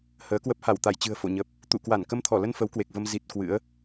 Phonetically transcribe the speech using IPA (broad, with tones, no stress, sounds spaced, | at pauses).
h əː˨˦ k w ə˦˥ p̚ h a˧˩ w t̪ a˧˩ j t͡ɕ ɨ̤˨˩ ə̯ f o̰˧˨ ɲ ə˨˩ p̚ | t̪ ṵ˧˨ k w a˧˩ n k ə˧ m t̪ʰ ɔ˧˩ l ə˧ n f ə˨˦ w k w e˨˩ k̚ v ə˧ m z i˨˩ t̚ k w ɨ̰˧˥ ə̯